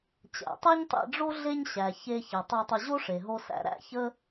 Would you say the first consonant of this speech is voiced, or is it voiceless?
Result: voiceless